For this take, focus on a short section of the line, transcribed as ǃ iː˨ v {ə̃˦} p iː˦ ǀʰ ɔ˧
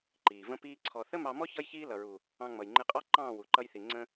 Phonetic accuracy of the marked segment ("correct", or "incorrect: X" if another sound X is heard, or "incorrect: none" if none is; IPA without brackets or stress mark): correct